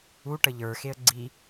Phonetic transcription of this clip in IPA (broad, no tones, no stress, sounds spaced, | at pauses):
u ʈ ə ʎ ə˞ x e ə̯ ɡ͡ǀ i